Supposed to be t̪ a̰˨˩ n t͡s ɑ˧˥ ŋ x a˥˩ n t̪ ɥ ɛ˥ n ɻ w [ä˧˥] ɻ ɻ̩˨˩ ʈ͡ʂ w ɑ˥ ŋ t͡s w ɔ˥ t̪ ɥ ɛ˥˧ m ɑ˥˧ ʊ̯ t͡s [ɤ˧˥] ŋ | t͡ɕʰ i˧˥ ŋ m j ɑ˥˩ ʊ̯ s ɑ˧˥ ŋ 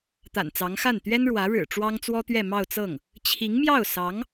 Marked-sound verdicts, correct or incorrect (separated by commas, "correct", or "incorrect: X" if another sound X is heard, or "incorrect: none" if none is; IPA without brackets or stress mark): correct, incorrect: ɤ˥˩